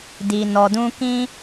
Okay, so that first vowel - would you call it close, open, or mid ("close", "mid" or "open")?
close